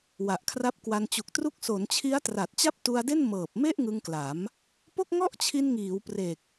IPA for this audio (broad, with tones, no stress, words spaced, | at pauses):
wa˨˩ʔkʰra˦˥p̚kwa˧n t͡ɕu˨˩k̚tru˦˥k̚ so˩˦nt͡ɕʰi˦˥a̯ tra˨˩t̚t͡ɕa˥˩p̚tu˧a̯de˥˩n mɤː˨˩p̚me˥˩ʔ ŋɯ˧ŋkla˩˦m | po˥˩k̚ŋɔ˥˩ʔt͡ɕʰi˧nŋiː˩˦w pre˨˩k̚